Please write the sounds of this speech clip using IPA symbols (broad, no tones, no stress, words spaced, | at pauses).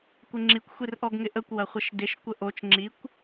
kʷɪŋ͡ǁikʷ xʷirʔɔɡŋɪʔəkʷ wɐχʷəʃdɪʃ kʷəʔot͡ʃ ŋ͡ǁikʷ